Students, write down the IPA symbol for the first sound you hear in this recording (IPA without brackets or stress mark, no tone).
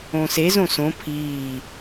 õː